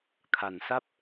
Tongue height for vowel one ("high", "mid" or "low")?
low